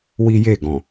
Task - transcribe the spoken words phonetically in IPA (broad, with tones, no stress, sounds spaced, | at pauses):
w i˦ j e˦˨ ɡ ɔ̃˨